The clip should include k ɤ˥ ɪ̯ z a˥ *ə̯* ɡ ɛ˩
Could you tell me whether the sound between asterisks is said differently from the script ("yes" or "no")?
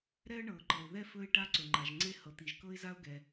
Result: yes